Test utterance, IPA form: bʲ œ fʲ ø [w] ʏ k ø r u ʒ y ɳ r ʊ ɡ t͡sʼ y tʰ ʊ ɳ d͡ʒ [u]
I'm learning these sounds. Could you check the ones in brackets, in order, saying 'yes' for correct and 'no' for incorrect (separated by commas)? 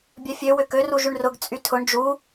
yes, yes